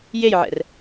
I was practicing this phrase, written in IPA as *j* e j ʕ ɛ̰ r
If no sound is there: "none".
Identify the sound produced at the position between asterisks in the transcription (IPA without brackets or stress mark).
j